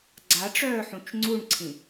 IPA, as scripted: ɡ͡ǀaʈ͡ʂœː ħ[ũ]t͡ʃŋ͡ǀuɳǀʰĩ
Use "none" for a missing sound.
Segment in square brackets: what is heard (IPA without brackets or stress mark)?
ũ